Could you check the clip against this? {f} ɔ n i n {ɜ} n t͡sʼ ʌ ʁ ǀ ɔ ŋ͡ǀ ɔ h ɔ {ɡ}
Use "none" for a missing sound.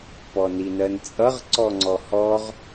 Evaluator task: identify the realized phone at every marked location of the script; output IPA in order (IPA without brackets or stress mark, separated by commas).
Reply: p, ɜ, ʁ